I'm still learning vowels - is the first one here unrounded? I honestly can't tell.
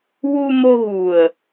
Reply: no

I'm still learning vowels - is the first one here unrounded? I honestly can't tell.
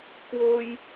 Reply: no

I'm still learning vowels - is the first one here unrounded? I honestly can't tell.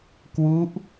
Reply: no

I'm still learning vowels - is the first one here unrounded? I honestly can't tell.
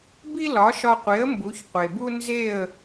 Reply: yes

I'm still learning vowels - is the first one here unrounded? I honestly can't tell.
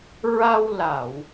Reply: yes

